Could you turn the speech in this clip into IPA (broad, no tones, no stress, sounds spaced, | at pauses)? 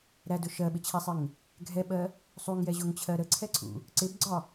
ɾ æ d ʊ ʃ ɜ ɓ ɪ t͡ɕʰ æ sˤ ɪ ŋ | ɡʱ ɛ ɓ ɜ | sˤ u ŋ j ɛ ʑ ʊ ŋ t͡ɕʰ ɜ ɾ ə ǀʰ ɛ ǀʰ ṵ | ǀ ɪ b ɡ͡ǀ ɒ